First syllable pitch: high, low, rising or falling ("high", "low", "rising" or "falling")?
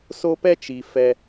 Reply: high